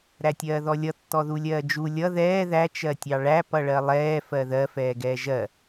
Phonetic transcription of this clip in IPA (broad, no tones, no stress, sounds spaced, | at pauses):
ɾ æ tʲ ɜː ð ɔ lʲ ʌ tː ɔ ð u lʲ ɜː d͡ʒ u lʲ ʌ ð ɛː ð æ t͡ʃ ɜ tʲ ɑ ɭ æ p ʌ ɭ ɜ lˠ ɛː f ɜ ð ɜ f ɛː ɡ ɛː ʒ ɜ